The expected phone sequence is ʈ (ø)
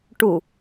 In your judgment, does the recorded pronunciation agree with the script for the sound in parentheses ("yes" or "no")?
no